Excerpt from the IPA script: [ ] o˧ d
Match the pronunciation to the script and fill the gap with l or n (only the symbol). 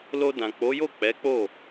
l